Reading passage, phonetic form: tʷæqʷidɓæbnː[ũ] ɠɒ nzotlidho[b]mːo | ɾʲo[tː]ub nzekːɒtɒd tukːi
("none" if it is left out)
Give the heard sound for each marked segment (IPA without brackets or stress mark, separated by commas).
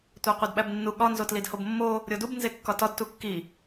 u, b, d